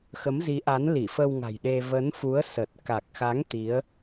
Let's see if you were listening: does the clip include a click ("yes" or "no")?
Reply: no